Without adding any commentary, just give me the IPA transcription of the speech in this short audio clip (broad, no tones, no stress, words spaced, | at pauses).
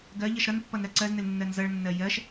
ɡɜ ʎʌʃɾʌnpːʌn ɾɜǀɜznɘl nːɜnzʌɭnːɜ jɜʃ